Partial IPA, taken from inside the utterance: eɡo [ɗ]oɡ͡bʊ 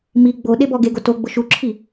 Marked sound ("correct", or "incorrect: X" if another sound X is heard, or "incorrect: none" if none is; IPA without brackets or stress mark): incorrect: t